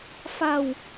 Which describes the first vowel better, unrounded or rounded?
unrounded